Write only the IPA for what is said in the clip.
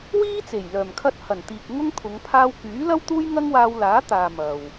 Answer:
w iː˥ t͡s e˨˩ j l œː˨˩ m kʰ ɐ˧ t̚ h ɐ˨˩ n t̪ iː˨ k̚ ŋ ʊ˥ ŋ t̪ʰ ʊ˨˧ ŋ pʰ aː˧ w k yː˨˥ l ɐ˥ w t̪ uː˥ j ŋ ɐ˥ ŋ w aː˧ w l aː˨˥ t̪ aː˨ m ɐ˨ w

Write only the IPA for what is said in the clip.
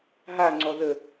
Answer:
ɦ a ŋ͡ǀ ɔ ð ə

